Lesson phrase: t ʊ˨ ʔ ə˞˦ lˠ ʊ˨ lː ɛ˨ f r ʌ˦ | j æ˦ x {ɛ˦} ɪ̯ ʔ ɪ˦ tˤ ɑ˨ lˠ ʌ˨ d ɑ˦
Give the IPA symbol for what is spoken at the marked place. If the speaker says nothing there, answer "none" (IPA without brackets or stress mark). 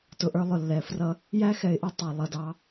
ɛ˨